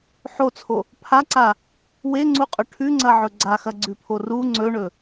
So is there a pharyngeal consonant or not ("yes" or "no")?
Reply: yes